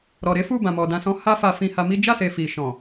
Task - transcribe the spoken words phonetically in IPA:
ɾɔ˨ɾe˨˦ fu˦˨bã˨mɔ˨ dã˨sɔ̃˨˦ ha˦fa˧ fĩ˧ha˧mi˦ d͡ʒa˦˨se˨ fi˨ʃɔ̃˨

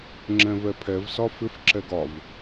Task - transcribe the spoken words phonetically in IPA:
ŋ͡ǁɛ̃vɛpʰɛv sɒfɪf ǁɛɡɒv

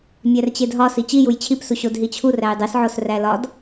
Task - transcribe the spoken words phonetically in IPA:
mʲært͡ɕedɦɒ sit͡ɕijuj t͡ɕʰipsu ɕodɦit͡ɕʰu ræjdˤisʕos rælɒd

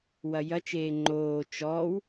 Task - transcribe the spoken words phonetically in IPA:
wɐjɐt͡ʃeː ŋ͡ǃoː t͡ʃɔːw

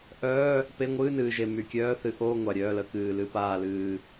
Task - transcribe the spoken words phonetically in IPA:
ʔœː˧˥˧ | pe˧˥˧ ŋʷɨː˧˥˧nɨː˨˩ʒe˨˩ my˨˩ kʲœː˧˥˧θɨ˧˥˧ ʔoː˧˥˧ ŋʷa˨˩ɾʲœː˧˥˧lə˧˥˧ kɨː˨˩lɨ˧˥˧ paː˦˨lɨː˦˨

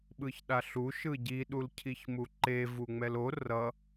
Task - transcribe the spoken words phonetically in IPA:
ɓɯçɗaɬu ʃɯɟi ɗulcʰiçmuǃe vuŋ͡mɛlo rʌ

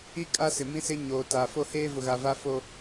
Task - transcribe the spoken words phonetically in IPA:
i˦ kʼa˦sɪ˨mĩ˦ sɪ˦ ɲoː˨ta˨ fo˦ heː˦vʊ˨ ɣa˨va˦ fo˦

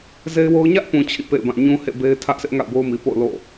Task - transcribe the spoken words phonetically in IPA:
ze˦ɪ̯wo˦ʊ̯ ɲä˦ʔpũ˨ t͡ɕʰḭ˦˨pḛ˦˨ɪ̯bã˦˨ ɲũ˦hḛ˦˨be˦ɪ̯ tʰä˦ʔsʰɪ˦ʔ ŋa̰˦˨ʊ̯bo˦ʊ̯mi˨ po̰˦˨ʊ̯ lo̰˦˨

